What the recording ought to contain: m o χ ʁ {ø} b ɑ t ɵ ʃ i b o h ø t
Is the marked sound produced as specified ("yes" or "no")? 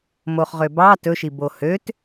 yes